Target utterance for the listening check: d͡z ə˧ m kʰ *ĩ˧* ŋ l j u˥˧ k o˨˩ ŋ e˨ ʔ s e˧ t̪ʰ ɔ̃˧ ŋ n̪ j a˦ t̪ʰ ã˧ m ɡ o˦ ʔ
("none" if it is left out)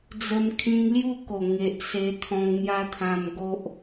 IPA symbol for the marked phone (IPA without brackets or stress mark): ĩ˧